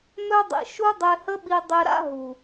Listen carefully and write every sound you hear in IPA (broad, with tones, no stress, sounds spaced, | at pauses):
m œ˧ dˤ ḭ˨ ʃ u˦ dˤ e˧ h ə˦ ɓ i˧ dˤ e˨ ɾ a̰˦ ɦ u˨